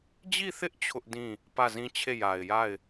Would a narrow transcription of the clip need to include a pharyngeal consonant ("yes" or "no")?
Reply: no